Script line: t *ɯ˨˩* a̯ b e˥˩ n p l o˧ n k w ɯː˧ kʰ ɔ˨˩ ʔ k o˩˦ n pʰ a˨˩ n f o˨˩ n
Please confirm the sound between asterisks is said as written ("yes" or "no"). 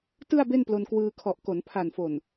no